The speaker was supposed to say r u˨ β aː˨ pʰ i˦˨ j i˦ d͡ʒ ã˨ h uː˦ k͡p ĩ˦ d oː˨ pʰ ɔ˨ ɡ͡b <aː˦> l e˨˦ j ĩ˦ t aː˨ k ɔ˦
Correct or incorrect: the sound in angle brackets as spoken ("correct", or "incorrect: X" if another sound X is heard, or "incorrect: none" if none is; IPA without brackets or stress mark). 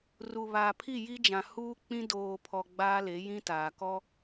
correct